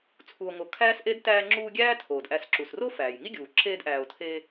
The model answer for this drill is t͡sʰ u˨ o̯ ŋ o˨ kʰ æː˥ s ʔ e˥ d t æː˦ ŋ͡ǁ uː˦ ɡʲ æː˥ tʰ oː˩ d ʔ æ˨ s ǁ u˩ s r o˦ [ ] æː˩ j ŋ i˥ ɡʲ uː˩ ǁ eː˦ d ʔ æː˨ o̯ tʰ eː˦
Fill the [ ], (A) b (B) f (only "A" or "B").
B